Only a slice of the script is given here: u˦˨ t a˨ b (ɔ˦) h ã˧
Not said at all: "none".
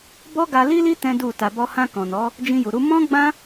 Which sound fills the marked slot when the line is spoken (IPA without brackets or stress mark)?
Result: ɔ˧